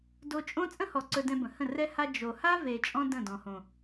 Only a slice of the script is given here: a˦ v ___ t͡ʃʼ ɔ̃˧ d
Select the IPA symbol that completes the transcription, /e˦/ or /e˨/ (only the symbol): e˨